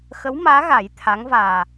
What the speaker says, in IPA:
x ə˧˥ w m aː˧˥ ɣ a˨˩˦ j t̪ʰ a˧˥ ŋ v aː˨˩

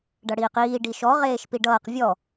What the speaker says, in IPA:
ɖ ʌ ɽ iː q iː ɖ i ʃ ɔ ʁ eː ʃ p i ɖ ʌː q vʲ ɔ

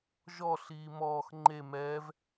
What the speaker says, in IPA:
ʒ ɔ ɬ iː m ɔː x ŋ͡ǃ e m ɛː v

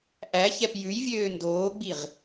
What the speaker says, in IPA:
ʔ æ ç ɛ p j ʉ j vʲ øː n d oː ɡ͡b i ʁ

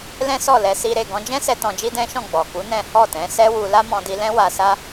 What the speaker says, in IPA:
l ɛ̃˦ s ɔ˦˨ l ɛ˧ s i˧ ɾ e˨ ɡ ɔ̃˧ d͡ʒ ɛ̃˦ s ɛ˧ t ɔ̃˧ d͡ʒ i˦ d ɛ̃˦ ʃ ɔ̃˦˨ ɡ͡b ɔ˨ k u˨˦ n ɛ̃˦ h ɔ˦˨ t ɛ̃˨˦ s ɛ˦ w u˧ l a˦ m ɔ̃˧ d i˧ l ɛ̃˦ w a˧ s a˦

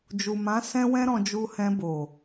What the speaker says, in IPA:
d͡ʒ u˨ m ã˨˦ s ɛ̃˦ w ɛ̃˦ ɾ ɔ̃˧ d͡ʒ u˧ h ɛ̃˧ b o˨

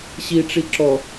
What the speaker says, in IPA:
ɕ i ʈ͡ʂ i ǁ ɔ

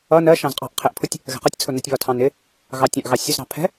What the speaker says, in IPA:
ʌ n ɜ ʃ ɑ̃ z qʼ ɑ̤ ʔ qʰ ɪ ʔ pʰ ʊ tʲ | ɣ ɛ̤ q ʌ tʲ t͡sʰ ʊ n ɛ tʲ β ɒ tʰ ɑ̃ n ɪ | ɣ ɑ tʲ ɑ̃ ʔ ɣ ɑ sʲ ʊ z ɾ ɑ̤ pʰ ɛ̤

